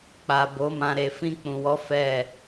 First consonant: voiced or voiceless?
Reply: voiceless